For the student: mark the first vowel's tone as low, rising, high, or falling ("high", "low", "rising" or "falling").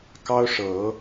high